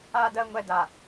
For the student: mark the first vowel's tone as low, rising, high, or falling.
high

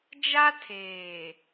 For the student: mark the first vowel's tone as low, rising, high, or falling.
high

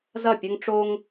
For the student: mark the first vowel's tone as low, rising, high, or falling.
falling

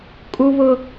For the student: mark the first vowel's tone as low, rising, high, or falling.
high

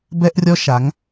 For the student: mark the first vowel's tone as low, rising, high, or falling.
high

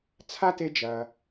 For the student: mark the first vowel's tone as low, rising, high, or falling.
high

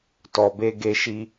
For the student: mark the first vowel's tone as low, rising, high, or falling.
low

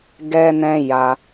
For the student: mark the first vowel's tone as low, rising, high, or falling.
high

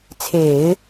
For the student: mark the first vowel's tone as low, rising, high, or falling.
low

